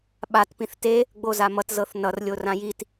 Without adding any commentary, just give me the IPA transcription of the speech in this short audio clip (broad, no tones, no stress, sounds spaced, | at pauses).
ɓ a t p ĩ θ t e | ɡ͡b o z a m ʌ t z ɤ θ n ʌ r lʲ o r ã j i t